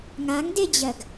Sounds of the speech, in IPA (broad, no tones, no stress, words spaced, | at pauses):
ŋaŋded͡ʑɜɡ